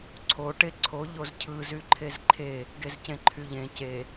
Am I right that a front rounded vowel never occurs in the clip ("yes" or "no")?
no